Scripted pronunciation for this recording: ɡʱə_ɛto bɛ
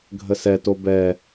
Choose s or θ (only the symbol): s